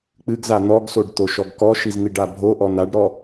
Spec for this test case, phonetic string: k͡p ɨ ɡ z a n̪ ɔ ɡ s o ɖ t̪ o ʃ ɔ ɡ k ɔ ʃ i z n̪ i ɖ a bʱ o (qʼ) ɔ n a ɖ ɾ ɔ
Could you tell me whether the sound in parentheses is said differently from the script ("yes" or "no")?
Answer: yes